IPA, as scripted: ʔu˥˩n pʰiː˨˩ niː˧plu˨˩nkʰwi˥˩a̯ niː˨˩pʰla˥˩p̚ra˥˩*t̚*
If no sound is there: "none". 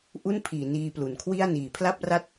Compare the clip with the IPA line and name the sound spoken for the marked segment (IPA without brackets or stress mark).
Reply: t̚